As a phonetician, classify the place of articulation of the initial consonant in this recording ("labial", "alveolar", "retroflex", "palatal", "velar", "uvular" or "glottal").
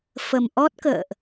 labial